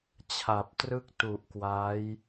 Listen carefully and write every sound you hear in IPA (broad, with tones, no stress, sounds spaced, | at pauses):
t͡ɕʰ a˨˩ p̚ t r ɯ˥˩ k̚ t u˨˩ ʔ k w a˦˥ j